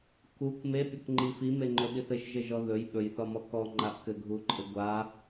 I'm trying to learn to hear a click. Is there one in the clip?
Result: yes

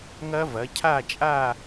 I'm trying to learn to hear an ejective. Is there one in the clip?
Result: yes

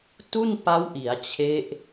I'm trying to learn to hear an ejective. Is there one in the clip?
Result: no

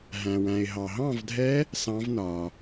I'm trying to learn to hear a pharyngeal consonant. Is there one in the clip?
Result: no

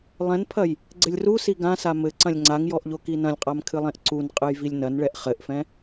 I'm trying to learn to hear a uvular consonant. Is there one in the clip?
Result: yes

